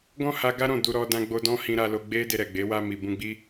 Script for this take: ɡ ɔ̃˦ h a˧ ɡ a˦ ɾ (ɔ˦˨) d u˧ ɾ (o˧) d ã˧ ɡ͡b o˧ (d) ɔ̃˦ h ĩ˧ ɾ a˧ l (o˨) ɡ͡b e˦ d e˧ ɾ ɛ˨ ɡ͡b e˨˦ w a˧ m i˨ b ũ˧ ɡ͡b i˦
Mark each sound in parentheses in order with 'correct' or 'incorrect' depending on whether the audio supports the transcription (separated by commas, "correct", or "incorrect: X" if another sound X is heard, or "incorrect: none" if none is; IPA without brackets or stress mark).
incorrect: ɔ̃˦˨, incorrect: ɔ˧, correct, incorrect: o˧